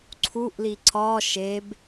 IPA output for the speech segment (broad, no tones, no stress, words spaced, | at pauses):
ǀʰuʔli ǀɒ ʃeb